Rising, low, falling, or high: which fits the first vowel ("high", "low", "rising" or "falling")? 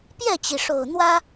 falling